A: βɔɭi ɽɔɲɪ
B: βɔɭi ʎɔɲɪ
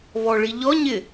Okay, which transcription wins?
B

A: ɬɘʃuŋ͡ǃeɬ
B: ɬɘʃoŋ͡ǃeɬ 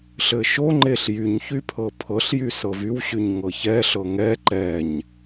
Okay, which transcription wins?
B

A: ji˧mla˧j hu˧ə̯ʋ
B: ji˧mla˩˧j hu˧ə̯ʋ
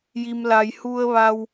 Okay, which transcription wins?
A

